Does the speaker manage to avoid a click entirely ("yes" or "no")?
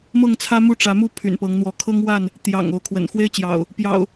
yes